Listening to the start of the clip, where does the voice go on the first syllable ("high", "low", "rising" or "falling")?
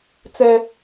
high